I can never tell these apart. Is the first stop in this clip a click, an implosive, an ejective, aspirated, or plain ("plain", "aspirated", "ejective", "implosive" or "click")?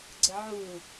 click